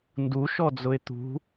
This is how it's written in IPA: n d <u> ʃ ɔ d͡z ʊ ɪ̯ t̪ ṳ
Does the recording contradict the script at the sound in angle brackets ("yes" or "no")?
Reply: no